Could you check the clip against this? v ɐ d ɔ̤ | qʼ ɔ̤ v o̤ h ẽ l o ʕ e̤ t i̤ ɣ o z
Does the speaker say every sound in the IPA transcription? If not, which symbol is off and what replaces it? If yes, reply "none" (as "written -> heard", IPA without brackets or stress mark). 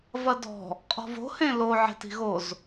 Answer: none